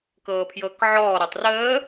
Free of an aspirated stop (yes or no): no